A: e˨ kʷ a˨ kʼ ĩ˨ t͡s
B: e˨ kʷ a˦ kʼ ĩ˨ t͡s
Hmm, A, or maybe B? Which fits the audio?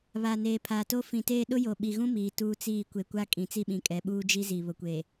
B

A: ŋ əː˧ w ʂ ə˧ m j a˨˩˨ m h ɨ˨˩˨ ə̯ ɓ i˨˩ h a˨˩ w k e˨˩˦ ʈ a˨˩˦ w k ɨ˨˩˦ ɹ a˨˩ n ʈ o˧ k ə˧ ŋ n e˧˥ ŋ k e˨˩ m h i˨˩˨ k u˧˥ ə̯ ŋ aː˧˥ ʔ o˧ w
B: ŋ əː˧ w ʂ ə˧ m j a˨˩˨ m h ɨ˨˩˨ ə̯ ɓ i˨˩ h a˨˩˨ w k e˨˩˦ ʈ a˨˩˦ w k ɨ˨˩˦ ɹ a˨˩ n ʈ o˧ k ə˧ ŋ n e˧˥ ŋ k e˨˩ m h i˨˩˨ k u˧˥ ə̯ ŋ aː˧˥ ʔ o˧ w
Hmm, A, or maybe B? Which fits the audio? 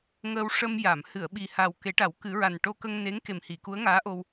A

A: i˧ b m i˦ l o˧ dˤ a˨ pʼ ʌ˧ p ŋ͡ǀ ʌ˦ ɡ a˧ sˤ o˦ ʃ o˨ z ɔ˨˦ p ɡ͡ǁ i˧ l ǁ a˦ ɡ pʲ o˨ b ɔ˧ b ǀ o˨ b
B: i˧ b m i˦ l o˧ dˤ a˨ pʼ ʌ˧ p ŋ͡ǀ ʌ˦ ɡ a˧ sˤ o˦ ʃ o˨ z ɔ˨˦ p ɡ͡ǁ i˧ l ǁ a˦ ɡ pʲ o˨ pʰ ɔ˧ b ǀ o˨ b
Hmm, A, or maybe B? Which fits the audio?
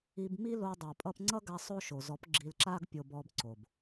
A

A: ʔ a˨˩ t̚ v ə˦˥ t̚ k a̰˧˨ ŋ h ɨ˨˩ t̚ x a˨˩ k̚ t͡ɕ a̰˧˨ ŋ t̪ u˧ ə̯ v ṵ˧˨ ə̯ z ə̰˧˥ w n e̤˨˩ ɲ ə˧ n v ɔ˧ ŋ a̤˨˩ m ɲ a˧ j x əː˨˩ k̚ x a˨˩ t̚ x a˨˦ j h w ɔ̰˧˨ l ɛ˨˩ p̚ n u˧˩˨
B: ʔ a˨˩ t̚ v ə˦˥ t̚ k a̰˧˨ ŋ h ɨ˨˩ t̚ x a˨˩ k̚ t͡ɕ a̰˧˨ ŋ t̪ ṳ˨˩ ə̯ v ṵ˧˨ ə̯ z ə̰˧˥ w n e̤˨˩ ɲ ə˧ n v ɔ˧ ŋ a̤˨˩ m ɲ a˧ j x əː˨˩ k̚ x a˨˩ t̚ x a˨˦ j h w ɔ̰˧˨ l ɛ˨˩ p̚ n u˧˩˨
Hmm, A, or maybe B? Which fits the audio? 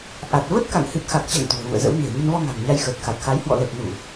B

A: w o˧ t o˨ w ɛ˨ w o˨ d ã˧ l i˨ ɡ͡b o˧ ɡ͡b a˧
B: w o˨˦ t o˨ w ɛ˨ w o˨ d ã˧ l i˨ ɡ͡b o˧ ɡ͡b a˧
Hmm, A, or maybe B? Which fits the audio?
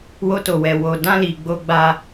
A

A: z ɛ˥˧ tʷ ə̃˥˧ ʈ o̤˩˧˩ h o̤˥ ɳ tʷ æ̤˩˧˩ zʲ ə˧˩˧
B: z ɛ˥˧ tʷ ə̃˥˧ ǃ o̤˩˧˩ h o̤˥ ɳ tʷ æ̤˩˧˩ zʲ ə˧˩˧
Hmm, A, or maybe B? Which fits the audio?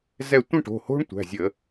A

